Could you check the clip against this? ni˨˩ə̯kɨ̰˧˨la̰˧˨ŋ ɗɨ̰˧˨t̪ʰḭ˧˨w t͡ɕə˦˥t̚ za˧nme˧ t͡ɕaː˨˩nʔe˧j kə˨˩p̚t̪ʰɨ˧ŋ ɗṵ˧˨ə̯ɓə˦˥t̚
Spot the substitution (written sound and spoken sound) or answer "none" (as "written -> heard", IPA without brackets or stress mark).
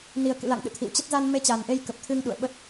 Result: none